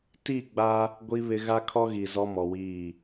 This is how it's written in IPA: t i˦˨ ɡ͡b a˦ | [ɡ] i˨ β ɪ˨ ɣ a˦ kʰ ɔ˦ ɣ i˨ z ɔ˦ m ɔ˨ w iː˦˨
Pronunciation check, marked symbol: incorrect: ɡʷ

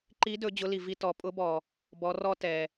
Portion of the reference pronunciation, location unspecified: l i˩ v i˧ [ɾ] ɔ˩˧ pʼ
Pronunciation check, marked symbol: incorrect: t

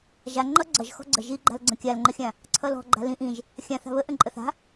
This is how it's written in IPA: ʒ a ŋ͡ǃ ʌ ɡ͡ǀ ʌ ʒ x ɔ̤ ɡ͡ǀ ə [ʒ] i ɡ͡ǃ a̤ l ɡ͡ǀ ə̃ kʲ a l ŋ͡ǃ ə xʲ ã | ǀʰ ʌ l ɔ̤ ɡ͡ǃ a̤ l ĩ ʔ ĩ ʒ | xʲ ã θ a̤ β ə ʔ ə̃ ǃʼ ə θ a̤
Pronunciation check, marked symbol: correct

